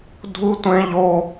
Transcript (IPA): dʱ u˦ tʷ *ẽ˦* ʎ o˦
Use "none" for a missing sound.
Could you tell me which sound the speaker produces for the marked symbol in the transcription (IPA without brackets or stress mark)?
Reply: ẽ˦